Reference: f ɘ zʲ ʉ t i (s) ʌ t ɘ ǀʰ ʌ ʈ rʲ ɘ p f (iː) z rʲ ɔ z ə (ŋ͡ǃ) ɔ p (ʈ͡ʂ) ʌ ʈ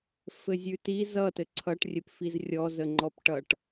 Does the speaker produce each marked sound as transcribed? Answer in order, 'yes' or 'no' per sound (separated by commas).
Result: no, no, yes, no